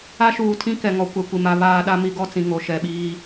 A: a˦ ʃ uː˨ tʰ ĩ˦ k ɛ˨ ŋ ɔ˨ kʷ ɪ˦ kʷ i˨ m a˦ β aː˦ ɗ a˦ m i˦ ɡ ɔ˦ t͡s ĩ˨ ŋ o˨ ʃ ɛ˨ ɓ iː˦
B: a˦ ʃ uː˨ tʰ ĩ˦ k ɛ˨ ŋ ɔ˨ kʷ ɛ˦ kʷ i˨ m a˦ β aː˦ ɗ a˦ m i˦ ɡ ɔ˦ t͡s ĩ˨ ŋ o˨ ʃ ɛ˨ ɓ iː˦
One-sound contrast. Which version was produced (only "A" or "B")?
B